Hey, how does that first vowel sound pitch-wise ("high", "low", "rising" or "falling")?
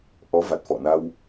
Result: rising